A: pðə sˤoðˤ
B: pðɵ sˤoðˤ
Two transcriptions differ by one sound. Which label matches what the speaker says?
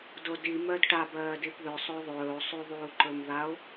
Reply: B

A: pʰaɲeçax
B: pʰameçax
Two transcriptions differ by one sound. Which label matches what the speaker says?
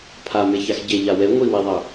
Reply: B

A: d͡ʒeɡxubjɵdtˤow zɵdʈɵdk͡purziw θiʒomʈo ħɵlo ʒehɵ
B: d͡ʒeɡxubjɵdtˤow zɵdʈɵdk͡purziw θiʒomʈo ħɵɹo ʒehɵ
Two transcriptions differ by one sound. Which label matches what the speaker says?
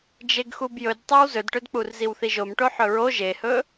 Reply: B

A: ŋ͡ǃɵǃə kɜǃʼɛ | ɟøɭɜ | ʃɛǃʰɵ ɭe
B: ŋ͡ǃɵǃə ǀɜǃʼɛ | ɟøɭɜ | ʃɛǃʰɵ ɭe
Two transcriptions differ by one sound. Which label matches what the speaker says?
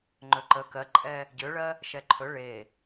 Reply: A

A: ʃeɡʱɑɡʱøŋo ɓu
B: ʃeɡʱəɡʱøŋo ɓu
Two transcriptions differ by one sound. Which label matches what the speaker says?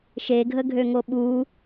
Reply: B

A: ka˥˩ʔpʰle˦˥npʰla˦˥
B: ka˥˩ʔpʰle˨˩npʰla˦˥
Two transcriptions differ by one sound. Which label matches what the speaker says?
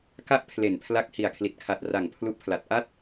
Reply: B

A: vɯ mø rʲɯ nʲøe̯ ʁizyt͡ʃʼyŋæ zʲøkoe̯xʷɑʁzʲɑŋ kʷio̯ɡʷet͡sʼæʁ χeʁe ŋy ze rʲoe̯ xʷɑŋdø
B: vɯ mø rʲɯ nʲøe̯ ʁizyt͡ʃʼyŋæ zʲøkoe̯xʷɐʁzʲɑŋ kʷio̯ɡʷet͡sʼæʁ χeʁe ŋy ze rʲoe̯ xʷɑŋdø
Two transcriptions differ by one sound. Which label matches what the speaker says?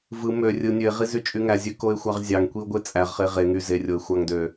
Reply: A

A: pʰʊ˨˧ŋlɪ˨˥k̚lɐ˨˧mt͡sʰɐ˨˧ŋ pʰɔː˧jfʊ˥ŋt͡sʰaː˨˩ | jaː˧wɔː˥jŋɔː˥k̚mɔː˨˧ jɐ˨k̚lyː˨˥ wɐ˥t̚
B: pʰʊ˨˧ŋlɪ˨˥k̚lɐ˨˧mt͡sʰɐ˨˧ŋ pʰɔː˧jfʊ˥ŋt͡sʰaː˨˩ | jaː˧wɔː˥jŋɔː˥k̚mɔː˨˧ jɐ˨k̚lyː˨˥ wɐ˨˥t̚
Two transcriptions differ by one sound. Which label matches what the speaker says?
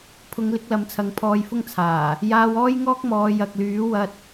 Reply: A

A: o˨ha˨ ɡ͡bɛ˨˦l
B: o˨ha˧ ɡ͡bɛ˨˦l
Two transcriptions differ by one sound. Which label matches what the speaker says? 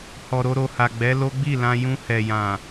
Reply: A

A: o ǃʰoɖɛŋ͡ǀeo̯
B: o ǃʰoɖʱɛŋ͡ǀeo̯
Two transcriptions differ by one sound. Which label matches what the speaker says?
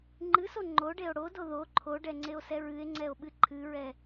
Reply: A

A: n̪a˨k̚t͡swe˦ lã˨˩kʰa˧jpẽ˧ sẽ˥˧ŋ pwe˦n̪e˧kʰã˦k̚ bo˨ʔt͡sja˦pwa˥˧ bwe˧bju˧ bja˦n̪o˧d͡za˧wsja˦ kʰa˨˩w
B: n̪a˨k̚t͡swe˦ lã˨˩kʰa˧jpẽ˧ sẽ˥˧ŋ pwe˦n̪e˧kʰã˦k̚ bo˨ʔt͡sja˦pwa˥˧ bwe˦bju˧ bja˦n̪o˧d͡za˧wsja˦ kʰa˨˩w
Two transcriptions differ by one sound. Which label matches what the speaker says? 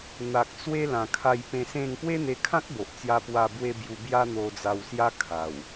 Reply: B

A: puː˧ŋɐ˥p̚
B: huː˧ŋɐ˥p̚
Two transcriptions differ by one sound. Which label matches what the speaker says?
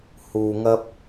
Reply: B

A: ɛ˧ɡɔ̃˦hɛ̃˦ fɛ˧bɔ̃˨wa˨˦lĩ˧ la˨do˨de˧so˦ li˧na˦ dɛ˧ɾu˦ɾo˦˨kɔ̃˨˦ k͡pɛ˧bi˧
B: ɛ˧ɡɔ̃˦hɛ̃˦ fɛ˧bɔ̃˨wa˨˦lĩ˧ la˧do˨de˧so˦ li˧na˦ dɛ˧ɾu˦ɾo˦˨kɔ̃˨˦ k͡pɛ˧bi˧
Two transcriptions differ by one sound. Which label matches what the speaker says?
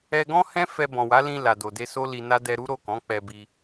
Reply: A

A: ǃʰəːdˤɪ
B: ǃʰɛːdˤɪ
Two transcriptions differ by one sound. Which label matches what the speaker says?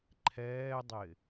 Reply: B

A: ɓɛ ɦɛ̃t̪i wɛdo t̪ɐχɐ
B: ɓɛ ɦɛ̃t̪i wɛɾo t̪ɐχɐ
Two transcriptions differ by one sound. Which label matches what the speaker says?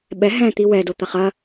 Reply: A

